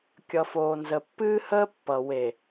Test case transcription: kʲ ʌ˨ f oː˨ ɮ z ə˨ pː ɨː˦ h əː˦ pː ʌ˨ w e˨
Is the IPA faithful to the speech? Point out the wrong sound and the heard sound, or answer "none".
ɮ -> n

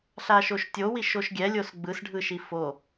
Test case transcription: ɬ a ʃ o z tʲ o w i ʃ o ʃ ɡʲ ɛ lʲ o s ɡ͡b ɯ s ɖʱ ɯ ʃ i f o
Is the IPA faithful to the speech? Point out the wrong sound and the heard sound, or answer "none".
z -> ʃ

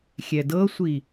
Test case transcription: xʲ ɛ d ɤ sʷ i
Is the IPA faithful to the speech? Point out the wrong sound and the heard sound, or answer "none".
none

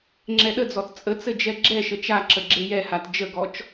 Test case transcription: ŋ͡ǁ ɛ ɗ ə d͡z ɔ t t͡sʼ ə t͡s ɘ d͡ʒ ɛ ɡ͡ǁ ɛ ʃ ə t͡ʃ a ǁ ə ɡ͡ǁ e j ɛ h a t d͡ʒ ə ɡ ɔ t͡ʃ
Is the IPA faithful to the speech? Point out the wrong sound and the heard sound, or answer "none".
none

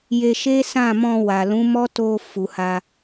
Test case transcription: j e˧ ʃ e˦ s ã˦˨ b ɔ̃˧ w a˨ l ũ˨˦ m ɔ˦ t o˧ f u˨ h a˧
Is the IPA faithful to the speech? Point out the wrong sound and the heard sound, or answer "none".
b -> m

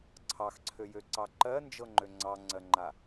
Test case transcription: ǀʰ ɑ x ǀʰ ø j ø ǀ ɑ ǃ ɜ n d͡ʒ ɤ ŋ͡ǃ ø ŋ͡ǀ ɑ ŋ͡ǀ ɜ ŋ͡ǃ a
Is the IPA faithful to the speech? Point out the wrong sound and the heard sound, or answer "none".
none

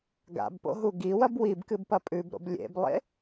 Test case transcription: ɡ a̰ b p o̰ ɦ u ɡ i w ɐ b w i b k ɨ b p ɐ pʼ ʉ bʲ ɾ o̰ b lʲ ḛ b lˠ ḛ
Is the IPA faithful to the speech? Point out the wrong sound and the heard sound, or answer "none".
bʲ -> b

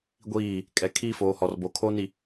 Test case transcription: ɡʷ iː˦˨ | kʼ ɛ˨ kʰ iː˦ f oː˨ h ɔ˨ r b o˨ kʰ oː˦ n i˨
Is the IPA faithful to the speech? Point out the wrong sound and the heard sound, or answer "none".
none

